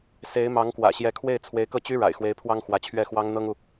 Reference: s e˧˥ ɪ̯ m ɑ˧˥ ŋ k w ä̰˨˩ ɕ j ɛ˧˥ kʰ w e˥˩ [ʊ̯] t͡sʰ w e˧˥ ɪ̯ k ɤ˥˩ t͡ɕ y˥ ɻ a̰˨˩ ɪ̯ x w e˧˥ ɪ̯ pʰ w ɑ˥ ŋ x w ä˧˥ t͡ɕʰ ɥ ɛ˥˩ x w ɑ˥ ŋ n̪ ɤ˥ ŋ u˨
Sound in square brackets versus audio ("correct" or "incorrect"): incorrect